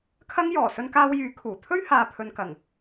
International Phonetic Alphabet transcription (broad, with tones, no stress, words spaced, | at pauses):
kʰɐ˥ŋjɔː˨˩ sɵ˧nkaː˧wjyː˨˥ kʰuː˨˩ t̪ʰɵ˥ɥhaː˨pʰɵ˨n kɐ˨˩ŋ